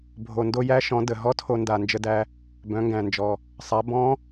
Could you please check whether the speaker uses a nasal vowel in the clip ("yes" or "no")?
yes